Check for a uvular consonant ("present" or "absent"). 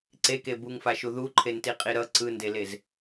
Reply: present